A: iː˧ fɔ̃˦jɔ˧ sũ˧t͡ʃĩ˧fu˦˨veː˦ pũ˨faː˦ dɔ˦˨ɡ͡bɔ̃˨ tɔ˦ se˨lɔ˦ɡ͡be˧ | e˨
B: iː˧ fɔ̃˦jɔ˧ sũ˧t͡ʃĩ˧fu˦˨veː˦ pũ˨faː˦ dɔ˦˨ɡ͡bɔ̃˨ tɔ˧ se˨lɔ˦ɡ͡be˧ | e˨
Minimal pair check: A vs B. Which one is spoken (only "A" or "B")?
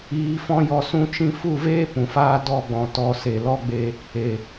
B